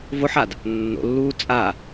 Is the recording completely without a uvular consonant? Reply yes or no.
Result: yes